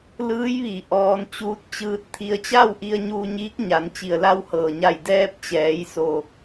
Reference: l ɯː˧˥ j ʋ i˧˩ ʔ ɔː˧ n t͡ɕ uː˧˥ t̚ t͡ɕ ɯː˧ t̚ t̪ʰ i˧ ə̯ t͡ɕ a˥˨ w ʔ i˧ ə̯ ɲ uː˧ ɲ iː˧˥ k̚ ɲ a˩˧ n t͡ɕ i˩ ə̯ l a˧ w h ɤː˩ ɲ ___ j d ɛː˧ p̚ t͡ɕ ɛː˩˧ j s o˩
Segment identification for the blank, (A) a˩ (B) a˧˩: B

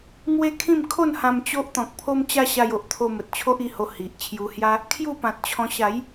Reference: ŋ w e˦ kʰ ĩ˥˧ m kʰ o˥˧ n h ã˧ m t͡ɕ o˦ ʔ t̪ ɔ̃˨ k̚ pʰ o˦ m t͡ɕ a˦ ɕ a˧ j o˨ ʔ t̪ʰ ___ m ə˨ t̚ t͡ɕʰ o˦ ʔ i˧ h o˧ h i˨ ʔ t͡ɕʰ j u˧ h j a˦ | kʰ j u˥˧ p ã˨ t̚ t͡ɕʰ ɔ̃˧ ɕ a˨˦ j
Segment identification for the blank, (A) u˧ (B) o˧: B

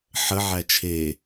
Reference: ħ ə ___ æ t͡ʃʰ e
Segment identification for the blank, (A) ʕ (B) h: A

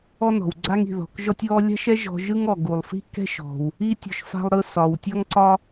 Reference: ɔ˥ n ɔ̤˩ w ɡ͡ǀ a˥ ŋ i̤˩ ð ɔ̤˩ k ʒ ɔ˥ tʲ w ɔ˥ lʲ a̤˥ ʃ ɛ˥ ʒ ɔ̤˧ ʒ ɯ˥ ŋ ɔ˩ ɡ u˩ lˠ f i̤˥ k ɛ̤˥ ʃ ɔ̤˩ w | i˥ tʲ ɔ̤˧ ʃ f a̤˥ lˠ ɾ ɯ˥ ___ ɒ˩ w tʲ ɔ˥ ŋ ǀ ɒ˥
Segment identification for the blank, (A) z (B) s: B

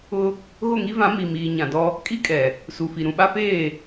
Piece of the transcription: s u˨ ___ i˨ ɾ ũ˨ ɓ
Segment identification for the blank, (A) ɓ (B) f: B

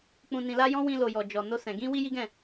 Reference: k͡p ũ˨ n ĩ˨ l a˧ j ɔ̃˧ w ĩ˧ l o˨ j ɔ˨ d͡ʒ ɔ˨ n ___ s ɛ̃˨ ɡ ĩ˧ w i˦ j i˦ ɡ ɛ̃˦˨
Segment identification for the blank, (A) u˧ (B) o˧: B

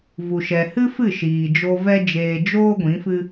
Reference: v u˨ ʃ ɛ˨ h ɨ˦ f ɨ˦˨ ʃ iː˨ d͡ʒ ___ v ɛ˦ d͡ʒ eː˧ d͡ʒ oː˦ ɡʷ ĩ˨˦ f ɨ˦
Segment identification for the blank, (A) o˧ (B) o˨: A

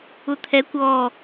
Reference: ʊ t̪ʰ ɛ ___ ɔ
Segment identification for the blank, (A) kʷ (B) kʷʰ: A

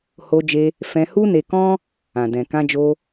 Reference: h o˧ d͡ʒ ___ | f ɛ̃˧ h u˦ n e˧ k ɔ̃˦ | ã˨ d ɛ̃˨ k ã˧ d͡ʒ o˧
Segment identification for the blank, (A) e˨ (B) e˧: B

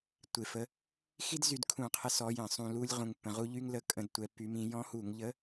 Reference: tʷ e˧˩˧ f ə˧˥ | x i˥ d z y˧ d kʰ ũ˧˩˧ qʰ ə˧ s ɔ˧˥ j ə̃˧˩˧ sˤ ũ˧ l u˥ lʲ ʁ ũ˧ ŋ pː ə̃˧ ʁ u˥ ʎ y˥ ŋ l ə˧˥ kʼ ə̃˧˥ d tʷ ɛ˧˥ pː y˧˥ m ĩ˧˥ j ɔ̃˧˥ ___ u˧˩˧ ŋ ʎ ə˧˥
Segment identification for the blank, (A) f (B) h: B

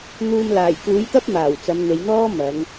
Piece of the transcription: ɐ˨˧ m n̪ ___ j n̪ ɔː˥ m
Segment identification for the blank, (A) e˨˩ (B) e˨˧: B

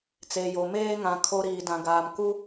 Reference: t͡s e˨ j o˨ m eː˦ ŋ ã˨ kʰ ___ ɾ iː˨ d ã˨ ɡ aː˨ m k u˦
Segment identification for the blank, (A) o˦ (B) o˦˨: A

